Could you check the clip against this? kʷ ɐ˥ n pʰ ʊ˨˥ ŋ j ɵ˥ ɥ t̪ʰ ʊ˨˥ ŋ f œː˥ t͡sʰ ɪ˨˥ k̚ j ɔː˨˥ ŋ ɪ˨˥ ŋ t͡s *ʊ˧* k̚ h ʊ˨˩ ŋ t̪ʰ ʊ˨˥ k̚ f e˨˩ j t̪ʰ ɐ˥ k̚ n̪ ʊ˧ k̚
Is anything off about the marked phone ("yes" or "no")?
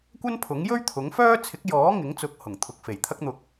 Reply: yes